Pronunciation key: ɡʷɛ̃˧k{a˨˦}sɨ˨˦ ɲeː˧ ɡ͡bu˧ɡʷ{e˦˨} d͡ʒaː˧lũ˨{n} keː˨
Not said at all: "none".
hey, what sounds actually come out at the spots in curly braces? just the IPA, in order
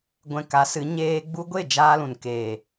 a˨˦, e˦˨, n

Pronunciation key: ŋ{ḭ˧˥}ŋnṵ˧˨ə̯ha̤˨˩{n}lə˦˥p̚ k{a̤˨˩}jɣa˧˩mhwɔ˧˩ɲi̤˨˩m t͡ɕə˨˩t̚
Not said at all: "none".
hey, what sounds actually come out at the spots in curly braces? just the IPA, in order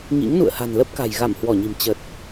ḭ˧˥, n, a̤˨˩

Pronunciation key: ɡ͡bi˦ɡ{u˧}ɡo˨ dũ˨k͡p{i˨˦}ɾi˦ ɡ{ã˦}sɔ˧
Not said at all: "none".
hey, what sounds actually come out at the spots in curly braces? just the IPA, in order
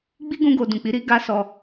ũ˧, i˨˦, a˦

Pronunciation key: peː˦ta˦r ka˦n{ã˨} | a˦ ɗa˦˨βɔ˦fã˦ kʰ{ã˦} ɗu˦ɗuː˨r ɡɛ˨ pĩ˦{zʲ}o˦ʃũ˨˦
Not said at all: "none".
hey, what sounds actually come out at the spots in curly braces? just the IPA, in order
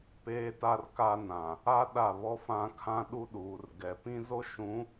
ã˨, ã˦, z

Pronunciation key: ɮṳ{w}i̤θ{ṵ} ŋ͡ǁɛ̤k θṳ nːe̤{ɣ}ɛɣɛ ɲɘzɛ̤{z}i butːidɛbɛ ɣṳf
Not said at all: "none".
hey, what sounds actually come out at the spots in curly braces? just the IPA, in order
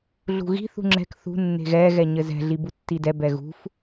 ɣ, ṳ, ɣ, ɮ

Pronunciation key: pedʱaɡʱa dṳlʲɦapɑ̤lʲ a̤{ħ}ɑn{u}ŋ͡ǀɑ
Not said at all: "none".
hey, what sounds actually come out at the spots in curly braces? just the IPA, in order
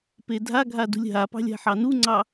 ħ, u

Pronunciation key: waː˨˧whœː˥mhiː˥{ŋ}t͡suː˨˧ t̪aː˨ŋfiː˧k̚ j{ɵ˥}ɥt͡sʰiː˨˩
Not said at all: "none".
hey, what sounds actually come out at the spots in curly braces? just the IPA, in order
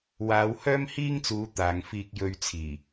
ŋ, ɵ˧

